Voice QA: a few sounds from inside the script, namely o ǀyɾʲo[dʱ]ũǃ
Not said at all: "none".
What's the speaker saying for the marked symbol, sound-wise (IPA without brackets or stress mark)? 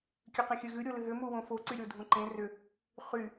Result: dʱ